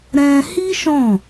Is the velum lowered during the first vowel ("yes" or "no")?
yes